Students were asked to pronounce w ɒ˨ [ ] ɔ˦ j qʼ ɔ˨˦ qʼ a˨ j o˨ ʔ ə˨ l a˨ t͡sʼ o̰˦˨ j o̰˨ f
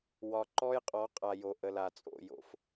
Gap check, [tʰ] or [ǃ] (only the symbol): ǃ